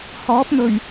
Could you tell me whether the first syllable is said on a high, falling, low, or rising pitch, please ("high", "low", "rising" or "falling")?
rising